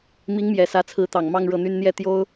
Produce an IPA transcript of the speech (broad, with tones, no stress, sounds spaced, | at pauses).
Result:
m i˧˥ ŋ m j ɛ˨˩ s ä˧˥ t͡sʰ ɹ̩˧˥ t̪ ɑ˨˩ ŋ m ɑ˥˧ ŋ ɻ ɤ˥˩ n̪ y˥ n n̪ j ɛ˥˩ t̪ j o˥ ʊ̯